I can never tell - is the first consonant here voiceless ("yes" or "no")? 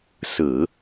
yes